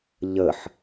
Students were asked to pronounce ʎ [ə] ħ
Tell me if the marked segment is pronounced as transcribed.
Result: yes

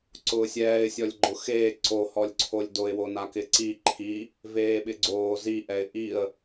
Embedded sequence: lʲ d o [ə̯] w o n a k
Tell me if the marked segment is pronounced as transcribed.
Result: no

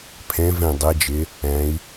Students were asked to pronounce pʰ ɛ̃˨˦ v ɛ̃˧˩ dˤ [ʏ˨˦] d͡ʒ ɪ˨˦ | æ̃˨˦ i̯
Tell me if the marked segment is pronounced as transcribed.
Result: no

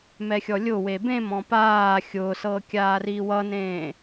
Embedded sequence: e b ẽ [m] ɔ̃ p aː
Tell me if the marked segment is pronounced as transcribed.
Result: yes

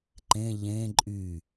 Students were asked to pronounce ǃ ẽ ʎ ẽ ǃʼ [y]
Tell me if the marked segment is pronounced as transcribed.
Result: yes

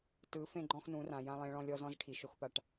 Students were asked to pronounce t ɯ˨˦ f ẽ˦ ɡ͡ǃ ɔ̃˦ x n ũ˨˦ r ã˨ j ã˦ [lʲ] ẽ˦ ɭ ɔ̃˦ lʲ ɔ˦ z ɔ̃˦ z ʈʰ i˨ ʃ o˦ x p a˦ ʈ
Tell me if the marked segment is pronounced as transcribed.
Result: no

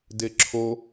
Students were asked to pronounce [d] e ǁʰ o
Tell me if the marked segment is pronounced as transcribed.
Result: yes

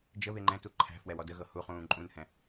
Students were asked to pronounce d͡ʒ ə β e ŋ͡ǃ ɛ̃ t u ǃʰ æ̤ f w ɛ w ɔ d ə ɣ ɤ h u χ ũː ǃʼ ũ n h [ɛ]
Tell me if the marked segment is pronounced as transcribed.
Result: no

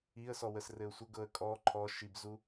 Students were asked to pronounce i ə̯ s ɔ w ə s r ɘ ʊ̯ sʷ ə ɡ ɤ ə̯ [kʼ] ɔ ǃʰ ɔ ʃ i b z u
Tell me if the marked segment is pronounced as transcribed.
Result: yes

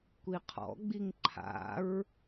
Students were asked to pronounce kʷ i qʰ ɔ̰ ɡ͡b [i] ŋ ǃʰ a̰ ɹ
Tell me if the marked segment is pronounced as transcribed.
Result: yes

